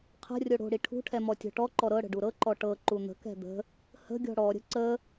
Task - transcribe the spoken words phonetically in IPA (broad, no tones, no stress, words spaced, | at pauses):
qʰə̤rʲo ɽo̤ɽi ʈʰṳʈʰɛmɔ tʲɔ̤ʈɔǃɔ ɾɤɽə̤ɖu ɾɤǃɔ ʈɤ ǃun̪ə̤kɛ̤ d̪ə̤ | hə̤ɡʲɔ̤ ɽɔɾʲə̤ ǀə